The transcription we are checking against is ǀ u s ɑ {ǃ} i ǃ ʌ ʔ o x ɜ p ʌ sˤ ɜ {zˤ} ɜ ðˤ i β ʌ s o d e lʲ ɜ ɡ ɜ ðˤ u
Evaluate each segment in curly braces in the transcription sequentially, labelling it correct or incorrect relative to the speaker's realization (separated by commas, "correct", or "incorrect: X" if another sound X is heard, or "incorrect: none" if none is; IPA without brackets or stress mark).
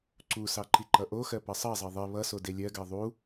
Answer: correct, correct